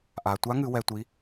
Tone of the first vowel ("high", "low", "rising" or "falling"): low